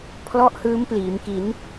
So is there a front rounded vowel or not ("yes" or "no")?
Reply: no